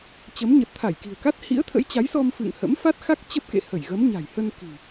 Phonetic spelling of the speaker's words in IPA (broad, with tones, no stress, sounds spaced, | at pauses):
t͡ɕ ə˨˦ m ɲ ə˨˩ t̚ t̪ʰ a˧˩ j k i̤˨˩ ə̯ k a˦˥ t̚ h ḭ˧˥ ə̯ t̪ʰ ə̰˧˥ j t͡ɕ a˨˦ j s ɔ˧ m f ɨ̰˧˨ ŋ h ə̰˧˥ m f a˦˥ t̚ x a˦˥ k̚ t͡ɕ ə˦˥ p̚ k ḛ˧˨ h ə˧˩ j ɣ ə˨˦ m ɲ a̤˨˩ j h ə˧ n k i̤˨˩